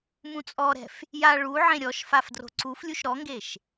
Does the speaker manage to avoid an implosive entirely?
yes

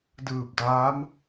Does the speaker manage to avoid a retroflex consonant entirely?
yes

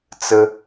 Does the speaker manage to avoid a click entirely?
yes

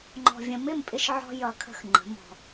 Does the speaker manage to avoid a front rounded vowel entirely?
yes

